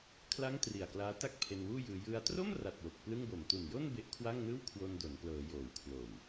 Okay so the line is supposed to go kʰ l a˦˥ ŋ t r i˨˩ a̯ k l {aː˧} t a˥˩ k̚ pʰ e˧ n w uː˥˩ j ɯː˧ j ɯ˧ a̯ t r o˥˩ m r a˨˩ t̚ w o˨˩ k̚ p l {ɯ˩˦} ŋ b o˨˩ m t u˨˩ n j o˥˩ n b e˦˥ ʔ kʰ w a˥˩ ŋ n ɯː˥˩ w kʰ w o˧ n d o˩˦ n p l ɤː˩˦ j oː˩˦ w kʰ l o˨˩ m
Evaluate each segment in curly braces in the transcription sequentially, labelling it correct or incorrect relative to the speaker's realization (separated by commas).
incorrect, incorrect